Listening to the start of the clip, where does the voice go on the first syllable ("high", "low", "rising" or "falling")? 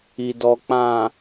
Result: low